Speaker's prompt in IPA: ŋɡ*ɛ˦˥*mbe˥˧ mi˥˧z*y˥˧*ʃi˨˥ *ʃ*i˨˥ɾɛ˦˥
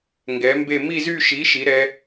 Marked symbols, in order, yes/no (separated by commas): no, yes, yes